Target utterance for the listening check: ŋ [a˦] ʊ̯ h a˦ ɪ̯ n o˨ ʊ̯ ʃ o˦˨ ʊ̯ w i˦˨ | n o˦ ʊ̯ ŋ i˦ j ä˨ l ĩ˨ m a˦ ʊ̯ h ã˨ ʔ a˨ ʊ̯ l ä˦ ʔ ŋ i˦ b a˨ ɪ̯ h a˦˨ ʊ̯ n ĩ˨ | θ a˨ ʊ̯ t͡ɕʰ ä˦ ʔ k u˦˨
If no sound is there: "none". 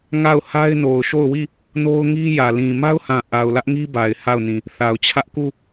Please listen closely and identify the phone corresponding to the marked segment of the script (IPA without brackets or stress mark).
a˦˨